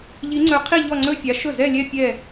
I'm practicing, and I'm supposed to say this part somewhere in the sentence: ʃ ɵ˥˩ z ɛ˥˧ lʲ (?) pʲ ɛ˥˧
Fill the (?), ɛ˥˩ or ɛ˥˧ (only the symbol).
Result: ɛ˥˧